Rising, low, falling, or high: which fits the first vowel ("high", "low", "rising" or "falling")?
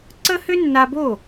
high